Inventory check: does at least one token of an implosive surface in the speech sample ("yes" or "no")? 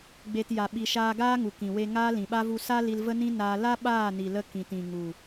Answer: yes